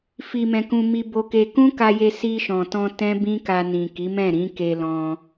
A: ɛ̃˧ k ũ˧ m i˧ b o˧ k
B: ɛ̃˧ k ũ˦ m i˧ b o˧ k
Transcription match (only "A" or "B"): A